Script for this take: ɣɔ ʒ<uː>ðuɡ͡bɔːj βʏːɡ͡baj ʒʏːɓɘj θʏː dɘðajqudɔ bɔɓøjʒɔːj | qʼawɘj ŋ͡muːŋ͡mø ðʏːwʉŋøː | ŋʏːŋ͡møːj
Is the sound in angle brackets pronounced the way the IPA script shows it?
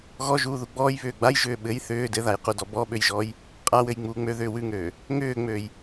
yes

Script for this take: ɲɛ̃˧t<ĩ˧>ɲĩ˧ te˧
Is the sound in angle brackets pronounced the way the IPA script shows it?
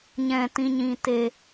yes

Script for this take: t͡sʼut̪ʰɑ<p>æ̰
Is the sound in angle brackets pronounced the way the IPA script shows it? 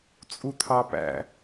yes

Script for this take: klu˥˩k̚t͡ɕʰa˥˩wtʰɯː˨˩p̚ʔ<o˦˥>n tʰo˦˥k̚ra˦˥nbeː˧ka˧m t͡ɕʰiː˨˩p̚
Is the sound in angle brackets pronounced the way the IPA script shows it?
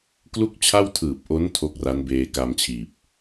yes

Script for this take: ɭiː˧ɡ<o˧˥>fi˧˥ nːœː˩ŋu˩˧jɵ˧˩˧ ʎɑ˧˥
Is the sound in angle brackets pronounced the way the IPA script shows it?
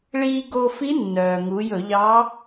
no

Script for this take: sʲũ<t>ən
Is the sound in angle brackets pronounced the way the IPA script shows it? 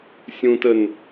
yes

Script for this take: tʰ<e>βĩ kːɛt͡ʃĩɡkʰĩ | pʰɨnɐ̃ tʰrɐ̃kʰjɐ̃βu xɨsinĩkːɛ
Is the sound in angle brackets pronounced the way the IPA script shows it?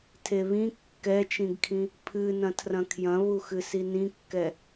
yes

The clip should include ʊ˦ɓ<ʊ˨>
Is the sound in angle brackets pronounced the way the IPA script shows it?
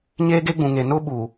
no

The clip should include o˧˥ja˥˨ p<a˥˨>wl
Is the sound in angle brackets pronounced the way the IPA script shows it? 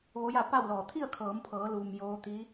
yes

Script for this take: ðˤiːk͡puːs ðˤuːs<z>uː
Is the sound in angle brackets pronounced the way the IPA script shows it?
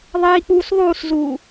yes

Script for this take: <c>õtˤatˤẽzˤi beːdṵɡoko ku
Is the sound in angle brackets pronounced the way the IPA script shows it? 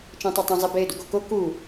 no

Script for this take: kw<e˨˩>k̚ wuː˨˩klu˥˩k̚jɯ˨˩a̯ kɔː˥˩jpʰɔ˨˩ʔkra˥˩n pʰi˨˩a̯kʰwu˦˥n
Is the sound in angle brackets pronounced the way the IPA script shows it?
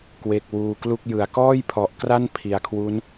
yes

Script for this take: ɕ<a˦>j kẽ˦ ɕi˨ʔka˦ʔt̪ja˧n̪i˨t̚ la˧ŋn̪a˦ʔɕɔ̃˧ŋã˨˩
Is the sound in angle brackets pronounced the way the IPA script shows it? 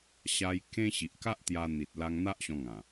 no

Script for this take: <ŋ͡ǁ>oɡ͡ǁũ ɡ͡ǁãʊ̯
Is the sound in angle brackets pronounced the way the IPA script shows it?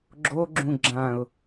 no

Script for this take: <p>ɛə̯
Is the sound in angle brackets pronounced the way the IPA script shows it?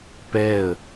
yes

